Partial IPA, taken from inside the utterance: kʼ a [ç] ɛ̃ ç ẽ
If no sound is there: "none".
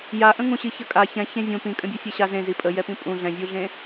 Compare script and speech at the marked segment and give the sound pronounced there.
ç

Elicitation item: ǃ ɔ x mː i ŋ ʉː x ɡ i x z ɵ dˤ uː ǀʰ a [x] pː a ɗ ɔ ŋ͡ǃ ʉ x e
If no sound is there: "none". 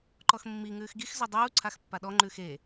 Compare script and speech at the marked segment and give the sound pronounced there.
x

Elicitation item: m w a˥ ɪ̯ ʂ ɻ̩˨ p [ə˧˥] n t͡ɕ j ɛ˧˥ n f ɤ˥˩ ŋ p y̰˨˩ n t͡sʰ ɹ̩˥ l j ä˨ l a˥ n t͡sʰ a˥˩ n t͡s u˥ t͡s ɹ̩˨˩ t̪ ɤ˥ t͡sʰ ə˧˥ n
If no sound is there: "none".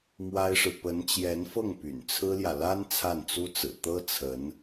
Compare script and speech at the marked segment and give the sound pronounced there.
ə˧˥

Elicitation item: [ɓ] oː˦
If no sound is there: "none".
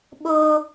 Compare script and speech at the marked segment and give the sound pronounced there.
ɓ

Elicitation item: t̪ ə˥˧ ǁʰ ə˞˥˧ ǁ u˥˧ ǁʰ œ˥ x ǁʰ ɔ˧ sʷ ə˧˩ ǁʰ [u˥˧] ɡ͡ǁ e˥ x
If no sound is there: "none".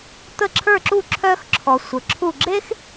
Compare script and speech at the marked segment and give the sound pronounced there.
u˥˧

